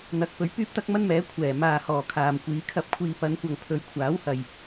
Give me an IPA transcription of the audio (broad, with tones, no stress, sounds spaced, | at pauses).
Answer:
n̪ ɐ˨˥ k̚ p ɵ˨˥ ɥ p yː˥ p̚ t̪ ɐ˥ k̚ m ɐ˥ n m ɛː˨˥ kʷʰ ɛː˨˩ m aː˨ h ɔː˨˩ kʰ aː˨ m kʷ iː˨˧ kʰ ɐ˧ p̚ kʷʰ iː˧ p ɐ˨˧ n kʷ ɐ˨ ŋ pʰ ɵ˨˧ ɥ kʷʰ aː˨˥ w h ɐ˨ j